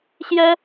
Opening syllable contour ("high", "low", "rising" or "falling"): high